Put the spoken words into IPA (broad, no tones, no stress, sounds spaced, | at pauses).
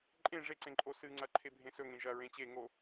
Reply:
ǃʼ ẽ ʐ e ǀ ẽ ǃʼ o s ɨ ŋ͡ǀ ɐ ǃʰ e bʱ ẽ s ɵ ŋ ẽ ʒ ɐ ɹ ẽ t͡ɕ e ŋ o